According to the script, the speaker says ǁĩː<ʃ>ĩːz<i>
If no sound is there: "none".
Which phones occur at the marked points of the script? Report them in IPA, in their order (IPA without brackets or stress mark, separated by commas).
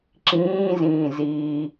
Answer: z, iː